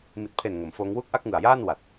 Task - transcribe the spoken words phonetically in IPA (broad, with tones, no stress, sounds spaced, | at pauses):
m i˨˩ t̚ pʰ e˨˩ n ŋ o˩˦ m f oː˦˥ ŋ w u˥˩ k̚ ʔ a˥˩ k̚ ŋ ɯ˨˩ a̯ j aː˥˩ n w a˨˩ t̚